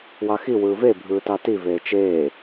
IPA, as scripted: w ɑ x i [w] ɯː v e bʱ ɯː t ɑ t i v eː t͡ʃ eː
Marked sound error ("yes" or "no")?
no